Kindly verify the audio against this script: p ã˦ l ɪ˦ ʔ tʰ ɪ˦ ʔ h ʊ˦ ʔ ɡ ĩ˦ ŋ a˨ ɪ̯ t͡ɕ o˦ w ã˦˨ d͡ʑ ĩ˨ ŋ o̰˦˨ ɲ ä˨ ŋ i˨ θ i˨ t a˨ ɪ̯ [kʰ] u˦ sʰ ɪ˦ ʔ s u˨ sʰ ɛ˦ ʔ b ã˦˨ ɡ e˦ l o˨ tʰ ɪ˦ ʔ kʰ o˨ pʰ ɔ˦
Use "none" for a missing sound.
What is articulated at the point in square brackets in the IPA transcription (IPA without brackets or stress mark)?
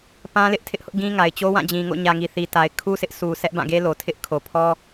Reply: kʰ